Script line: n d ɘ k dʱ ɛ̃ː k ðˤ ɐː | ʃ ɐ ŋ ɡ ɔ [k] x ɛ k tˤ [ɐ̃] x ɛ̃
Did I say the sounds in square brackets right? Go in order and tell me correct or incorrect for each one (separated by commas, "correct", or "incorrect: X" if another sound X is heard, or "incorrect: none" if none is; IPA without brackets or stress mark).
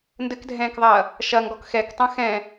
correct, correct